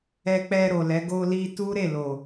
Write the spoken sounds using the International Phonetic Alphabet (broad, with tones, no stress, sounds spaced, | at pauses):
ɛ˧ k͡p ɛ˧ ɾ o˨ l ɛ˨˦ ɡ o˧ l i˧ t u˦ ɾ e˦˨ l o˨